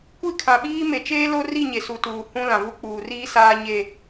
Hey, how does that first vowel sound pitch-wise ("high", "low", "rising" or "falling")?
falling